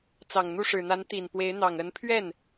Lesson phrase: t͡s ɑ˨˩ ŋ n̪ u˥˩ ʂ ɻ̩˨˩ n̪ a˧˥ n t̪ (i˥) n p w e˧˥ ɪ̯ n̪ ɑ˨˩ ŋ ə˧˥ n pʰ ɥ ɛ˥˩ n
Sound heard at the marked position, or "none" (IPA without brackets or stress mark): i˨˩